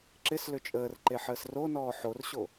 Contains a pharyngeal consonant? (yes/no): yes